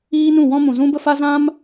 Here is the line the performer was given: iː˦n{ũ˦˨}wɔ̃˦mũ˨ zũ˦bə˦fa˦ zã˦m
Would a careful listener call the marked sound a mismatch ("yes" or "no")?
no